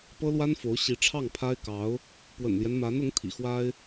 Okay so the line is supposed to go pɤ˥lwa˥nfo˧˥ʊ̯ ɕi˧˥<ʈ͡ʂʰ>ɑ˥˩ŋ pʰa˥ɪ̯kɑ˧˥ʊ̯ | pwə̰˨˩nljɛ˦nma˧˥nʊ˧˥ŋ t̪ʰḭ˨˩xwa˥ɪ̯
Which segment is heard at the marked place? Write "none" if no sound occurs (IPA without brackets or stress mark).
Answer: ʈ͡ʂʰ